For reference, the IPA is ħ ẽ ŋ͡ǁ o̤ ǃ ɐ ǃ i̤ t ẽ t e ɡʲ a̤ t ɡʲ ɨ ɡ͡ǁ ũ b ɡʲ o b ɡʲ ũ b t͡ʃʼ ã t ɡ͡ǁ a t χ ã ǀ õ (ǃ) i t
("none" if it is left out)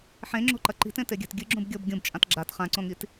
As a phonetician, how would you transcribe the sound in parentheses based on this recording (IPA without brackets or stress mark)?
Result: ŋ